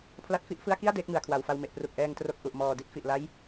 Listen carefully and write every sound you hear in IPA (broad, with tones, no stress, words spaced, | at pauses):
pʰla˦˥t̚fi˥˩ʔfɯ˥˩a̯ ki˥˩a̯ deː˦˥k̚ŋɯ˩˦a̯kʰwa˨˩wfa˧w me˨˩ʔpru˨˩k̚ʔɛː˧ŋtro˦˥k̚ ʔu˨˩ʔmɔː˨˩di˥˩t̚ fi˨˩ʔla˦˥j